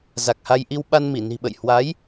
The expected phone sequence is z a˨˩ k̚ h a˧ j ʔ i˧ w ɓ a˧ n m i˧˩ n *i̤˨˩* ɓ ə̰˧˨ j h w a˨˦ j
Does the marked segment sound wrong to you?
no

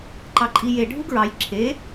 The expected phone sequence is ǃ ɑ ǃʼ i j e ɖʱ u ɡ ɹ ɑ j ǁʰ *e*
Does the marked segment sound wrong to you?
no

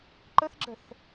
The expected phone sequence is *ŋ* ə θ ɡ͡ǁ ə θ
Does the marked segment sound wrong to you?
yes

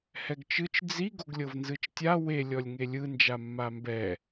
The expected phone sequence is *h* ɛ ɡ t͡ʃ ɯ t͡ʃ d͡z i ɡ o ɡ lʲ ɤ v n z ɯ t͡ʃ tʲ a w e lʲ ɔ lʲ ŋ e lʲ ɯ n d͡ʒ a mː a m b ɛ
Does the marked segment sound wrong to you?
no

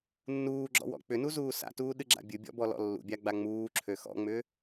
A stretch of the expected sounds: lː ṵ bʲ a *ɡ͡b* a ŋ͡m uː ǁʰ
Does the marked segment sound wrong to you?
no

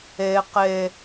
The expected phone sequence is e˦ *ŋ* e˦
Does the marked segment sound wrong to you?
yes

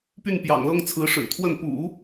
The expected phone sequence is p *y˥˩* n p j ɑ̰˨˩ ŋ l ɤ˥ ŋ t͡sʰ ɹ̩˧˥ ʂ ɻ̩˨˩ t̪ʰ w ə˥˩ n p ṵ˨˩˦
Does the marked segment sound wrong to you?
no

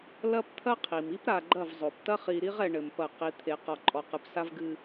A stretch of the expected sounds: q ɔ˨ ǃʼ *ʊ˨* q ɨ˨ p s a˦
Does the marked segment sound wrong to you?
yes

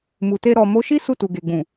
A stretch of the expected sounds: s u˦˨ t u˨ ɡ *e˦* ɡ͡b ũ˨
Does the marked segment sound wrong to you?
yes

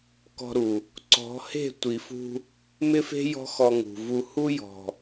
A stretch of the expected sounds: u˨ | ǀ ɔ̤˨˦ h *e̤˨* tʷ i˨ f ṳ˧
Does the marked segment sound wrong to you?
yes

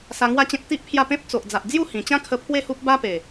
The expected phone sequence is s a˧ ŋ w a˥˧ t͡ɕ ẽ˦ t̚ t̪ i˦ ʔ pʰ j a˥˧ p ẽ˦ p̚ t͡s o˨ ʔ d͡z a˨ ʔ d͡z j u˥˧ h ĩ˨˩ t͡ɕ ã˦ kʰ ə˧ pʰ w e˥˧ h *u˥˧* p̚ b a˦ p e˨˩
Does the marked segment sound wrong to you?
yes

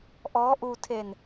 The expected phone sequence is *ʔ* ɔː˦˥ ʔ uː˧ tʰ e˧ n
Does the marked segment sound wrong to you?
no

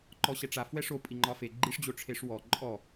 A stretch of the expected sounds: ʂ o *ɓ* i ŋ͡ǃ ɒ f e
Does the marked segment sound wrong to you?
yes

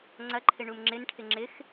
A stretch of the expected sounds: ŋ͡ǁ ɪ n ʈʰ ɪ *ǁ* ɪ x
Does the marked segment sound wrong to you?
yes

